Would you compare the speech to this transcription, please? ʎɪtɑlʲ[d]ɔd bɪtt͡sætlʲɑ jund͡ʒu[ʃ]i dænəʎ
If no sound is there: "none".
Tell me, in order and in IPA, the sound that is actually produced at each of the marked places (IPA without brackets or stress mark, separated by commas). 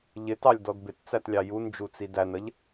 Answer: d, t͡s